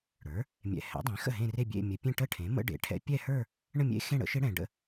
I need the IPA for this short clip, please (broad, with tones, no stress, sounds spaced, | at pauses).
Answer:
ɽ ə˞˩˥ | mʲ ɛ̰˨ h ɛ̰˩˥ dˤ ẽ˩˥ x ə̰˥˩ ɦ ẽ˥˧ r e˥˧ bʲ ḛ˥˧ mʲ ə˨˩˦ pʲ ẽ˥˧ ʈ ə˥˧ ʈʰ ẽ˩˥ m ə̰˦˥ ɖ ḛ˩˥ ʈʰ ɛ̰˦˥ pʲ ɛ˥˧ h ə˞˥˧ | ɳ ə̃˥˧ mʲ ḛ˦˥ x ẽ˥˧ ɽ ə̰˦˥ ʃ e˦˥ ɽ ɛ̃˨ ɖ ə̰˥˧